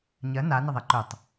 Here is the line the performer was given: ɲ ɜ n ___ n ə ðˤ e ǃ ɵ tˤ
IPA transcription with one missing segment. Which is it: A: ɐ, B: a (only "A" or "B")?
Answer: B